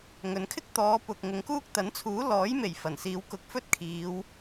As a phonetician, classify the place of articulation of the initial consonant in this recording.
velar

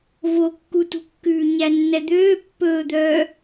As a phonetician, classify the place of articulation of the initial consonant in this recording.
labial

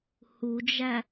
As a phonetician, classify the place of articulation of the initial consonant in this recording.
glottal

